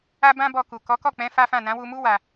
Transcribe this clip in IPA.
a˦bã˦bɔ˧ku˨ kɔ˨˦kɔ˦˨k͡pɛ̃˨˦ fa˦fã˦˨ nã˨˦wu˧mu˦ wa˧

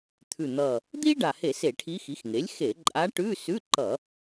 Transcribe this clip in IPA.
t̪ʰʉ˨˩n̪ʌ˨˩ | d̪i˥ɖa˨˩he˧˩˧ se˧˩˧ʈʰi˧˥ xi˩˥xŋe˩˥lʲxe˧˩˧ ǃʼa˧˥ ʈʉ˧˥˧ sʉ˧˥˧ǃʌ˧˩˧

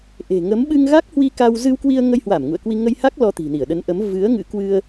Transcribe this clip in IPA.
ʔe̤˨˩ŋə˨˦m ɓɨ˧ŋɣa˦˥k̚hwi˧ ka˧w zɨ˧wkwi˧ə̯ŋə˧jhwa˧˩m ŋṵ˧˨ə̯kwi˧ ŋə˧jha˦˥k̚ lɔ˧t̪i̤˨˩ni˧˩ə̯ɗə˨˦n ʔə˨˦m vɨ˨˦ə̯ ŋɨ̰˧˥kwɨ˧ə̯

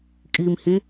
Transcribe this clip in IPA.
kʼimhĩ

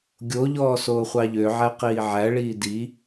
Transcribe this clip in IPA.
ɡʲoʎɔː soːχʷɑʎøʕæ qiːʕæɭiː di

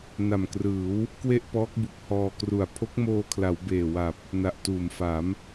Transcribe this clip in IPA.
na˨˩mkrɯː˩˦w | kwe˥˩ʔpɔː˦˥k̚bu˨˩k̚ hɔː˧kru˨˩a̯ pʰo˦˥k̚moː˧kʰla˩˦w beː˨˩wa˨˩p̚ | na˨˩ʔtuː˩˦mfa˩˦m

